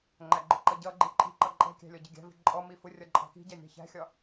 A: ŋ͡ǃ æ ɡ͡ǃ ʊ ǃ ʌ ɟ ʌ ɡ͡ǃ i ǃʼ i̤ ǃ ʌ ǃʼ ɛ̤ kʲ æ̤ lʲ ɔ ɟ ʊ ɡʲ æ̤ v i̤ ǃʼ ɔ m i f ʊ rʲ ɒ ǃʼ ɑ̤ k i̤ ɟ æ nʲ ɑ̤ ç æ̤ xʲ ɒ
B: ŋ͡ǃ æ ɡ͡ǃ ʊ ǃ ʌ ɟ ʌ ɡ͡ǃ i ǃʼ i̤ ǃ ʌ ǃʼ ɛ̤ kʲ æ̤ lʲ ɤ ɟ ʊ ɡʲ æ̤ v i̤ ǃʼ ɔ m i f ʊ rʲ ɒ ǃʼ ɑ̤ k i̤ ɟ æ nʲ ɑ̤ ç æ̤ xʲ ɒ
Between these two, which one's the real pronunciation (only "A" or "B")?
A